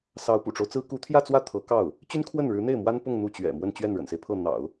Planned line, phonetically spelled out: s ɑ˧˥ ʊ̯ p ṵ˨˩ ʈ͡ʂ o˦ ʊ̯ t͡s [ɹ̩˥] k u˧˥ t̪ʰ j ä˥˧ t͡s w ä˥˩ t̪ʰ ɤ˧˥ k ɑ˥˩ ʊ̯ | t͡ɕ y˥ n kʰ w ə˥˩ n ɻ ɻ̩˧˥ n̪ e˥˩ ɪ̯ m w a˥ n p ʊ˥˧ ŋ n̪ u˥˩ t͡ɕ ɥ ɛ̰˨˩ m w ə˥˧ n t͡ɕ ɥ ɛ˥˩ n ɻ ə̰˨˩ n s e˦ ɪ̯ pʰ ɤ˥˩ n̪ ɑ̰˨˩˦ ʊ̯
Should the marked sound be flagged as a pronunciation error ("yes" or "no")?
no